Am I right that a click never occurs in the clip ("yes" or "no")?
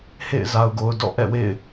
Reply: yes